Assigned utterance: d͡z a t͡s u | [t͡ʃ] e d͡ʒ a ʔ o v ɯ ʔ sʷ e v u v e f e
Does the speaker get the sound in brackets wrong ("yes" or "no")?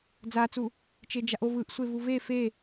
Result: no